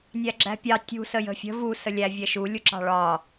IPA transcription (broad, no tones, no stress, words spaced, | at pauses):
nʲæɡ͡ǁæ̤pʲɑ tʲṳ səjə̤fʲə̤ vu səlʲæ vʲɛʃu lʲuǁɑ̤ɭɒ